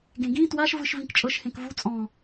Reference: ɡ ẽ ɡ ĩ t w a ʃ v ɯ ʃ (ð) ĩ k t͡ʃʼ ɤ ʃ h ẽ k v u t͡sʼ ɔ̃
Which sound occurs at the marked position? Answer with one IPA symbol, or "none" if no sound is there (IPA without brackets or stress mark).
v